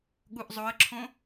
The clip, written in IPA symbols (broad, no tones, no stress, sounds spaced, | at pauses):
ɠ u ʔ zˤ o ə̯ ǁʰ õ